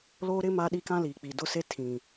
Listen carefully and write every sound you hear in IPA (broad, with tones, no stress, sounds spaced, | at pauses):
l o˦ ɾ ɪ˦ m a˦ ɗ i˦ k ã˦ l iː˨ k͡p i˨ d ʊ˦ s e˦ tʰ ĩ˨